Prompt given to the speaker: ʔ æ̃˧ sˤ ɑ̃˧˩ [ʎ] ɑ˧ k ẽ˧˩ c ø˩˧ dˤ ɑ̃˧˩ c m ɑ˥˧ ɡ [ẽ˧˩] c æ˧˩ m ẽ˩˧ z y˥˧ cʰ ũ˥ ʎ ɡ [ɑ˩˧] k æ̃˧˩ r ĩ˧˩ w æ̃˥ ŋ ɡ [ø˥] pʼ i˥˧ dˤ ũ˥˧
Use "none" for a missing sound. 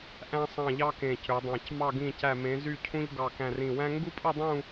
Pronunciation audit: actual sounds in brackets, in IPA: ʎ, ĩ˧˩, ɑ˧˩, u˥

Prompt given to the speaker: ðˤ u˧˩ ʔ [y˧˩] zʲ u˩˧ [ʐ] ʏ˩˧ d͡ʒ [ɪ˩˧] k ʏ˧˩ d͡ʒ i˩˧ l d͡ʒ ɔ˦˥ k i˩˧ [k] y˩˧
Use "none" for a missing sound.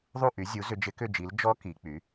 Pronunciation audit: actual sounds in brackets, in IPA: y˩˧, z, ɪ˩˧, k͡p

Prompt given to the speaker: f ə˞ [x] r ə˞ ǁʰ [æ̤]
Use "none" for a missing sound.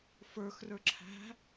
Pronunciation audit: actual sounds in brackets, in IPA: x, æ̤

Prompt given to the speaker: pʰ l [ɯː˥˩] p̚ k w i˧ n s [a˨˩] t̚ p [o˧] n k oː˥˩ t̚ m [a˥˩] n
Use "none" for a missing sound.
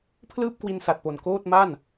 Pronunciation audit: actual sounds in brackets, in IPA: ɯː˥˩, a˨˩, o˨˩, a˥˩

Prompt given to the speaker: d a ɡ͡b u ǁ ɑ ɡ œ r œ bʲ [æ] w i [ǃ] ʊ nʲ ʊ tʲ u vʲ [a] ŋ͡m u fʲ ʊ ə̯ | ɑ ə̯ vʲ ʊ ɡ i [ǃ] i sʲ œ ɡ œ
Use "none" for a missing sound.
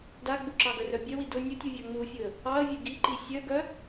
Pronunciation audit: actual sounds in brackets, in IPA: œ, d, ɑ, ǃ

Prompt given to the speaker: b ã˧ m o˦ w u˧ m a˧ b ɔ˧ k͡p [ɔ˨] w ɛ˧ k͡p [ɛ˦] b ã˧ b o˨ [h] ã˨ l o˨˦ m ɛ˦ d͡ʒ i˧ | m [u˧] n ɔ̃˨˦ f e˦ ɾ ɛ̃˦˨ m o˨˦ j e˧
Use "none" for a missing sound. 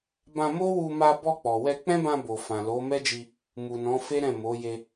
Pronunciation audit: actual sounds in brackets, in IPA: ɔ˨, ɛ̃˦, f, u˨

